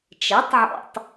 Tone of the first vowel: rising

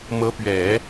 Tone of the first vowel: rising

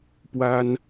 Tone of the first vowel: high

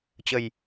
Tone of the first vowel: low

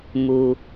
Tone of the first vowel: low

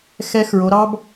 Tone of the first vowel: rising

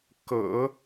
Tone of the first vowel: low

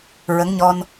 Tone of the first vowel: rising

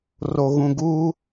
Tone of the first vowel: high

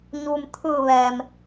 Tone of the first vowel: low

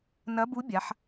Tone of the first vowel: rising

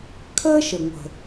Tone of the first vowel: high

